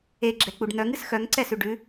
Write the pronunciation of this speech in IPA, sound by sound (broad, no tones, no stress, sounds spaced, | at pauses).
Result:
e ɡ͡ǁ ɛ k͡p u ɖ n̪ œ ŋ ɨ s x œ ŋ ǀ ɛ s ʉ ɖ ʉ